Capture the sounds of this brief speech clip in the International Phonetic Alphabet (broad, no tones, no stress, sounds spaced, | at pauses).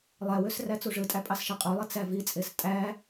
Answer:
lˠ æ w ø s r æ t͡s u ʐ ɯ tʼ æ pʼ ɑ s ʃ e qʼ u lˠ i t͡s æ v i t͡sʼ e s tʼ æ